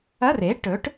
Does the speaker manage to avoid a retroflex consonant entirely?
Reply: no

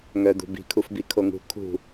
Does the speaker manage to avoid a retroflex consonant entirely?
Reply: yes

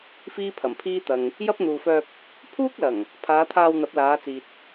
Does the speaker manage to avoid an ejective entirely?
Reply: yes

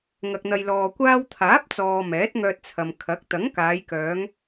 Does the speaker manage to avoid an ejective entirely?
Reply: yes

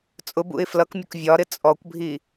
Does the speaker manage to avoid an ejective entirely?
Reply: no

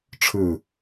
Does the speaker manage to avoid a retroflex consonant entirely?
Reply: no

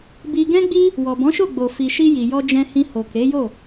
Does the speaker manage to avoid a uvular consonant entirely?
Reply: yes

